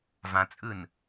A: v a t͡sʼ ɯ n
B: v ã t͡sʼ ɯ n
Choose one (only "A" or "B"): B